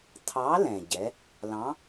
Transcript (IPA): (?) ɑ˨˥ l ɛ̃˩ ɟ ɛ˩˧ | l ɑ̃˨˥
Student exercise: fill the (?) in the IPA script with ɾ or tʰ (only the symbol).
tʰ